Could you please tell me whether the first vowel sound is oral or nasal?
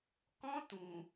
nasal